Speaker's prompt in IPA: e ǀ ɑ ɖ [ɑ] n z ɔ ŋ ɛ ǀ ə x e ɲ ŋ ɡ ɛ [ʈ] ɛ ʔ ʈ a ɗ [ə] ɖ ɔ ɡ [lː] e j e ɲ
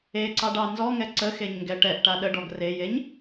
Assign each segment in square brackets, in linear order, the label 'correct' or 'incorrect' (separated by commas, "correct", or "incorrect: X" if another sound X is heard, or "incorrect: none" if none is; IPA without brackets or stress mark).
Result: correct, correct, correct, incorrect: r